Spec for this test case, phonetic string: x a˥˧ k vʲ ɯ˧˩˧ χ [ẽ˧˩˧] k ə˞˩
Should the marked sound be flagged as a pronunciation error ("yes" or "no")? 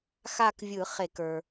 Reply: yes